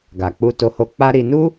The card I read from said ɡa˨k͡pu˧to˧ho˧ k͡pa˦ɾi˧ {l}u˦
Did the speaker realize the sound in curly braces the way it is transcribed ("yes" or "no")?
no